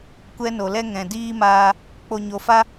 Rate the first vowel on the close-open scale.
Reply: mid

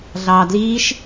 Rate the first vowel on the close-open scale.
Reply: open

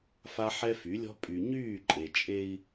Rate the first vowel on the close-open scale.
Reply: open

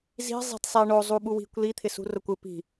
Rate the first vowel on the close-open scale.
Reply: close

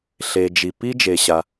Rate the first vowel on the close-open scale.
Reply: mid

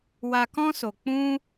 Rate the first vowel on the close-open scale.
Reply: open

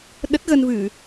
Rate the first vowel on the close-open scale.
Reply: mid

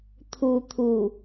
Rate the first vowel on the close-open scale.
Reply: close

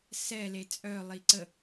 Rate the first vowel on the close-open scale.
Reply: mid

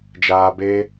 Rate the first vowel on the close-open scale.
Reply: open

